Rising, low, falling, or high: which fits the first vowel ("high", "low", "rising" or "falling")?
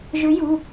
rising